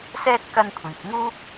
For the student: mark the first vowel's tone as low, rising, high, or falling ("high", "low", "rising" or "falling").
high